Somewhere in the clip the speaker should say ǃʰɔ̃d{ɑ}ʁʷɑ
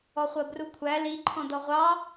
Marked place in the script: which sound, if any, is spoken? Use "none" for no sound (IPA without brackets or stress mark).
ɔ